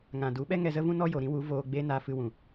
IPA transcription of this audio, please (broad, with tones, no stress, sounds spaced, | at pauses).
ŋ ã˨ d u˨˦ ɓ ɛ˦ ŋ ɛ˧ z ə˦ v ũ˦ n ɔ˦ j o˨ ɾ ĩ˦ w u˨˦ v oː˧ ɡ͡b e˦ n a˧ f ɨ˧ w ũ˨